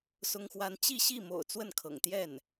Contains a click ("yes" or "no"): no